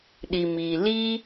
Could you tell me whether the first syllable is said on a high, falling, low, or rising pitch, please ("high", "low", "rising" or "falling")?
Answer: low